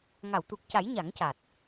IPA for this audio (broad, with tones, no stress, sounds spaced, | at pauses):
ŋ a˨˩˨ w t̪ u˨˩ k̚ c a˨˩˦ j ɲ a˨˩˦ ŋ c a˨˩ t̚